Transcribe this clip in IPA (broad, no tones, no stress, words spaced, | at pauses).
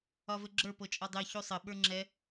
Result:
ɒvɘɡ͡ǁə˞ pɤt͡ʃʼɒdˤe çusˤɘ ɓə˞ŋ͡ǁɛ